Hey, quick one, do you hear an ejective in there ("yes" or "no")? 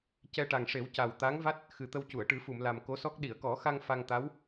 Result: no